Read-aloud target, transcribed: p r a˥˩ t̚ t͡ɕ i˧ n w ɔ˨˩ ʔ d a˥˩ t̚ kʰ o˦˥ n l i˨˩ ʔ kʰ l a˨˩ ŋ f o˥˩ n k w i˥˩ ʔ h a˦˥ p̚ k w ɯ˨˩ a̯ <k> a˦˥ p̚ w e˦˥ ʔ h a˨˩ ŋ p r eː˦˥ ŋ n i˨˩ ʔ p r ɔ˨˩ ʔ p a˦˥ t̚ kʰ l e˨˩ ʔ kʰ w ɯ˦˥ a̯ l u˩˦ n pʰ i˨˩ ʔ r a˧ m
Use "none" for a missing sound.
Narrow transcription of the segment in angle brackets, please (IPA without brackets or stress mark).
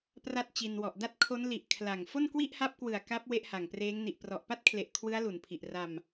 k